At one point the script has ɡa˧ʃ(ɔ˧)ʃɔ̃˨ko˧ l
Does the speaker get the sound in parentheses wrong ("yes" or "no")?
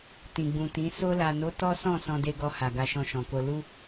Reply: yes